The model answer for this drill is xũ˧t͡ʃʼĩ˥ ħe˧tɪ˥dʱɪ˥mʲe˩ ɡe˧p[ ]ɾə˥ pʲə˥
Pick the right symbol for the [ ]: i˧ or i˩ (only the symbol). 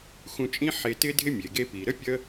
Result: i˩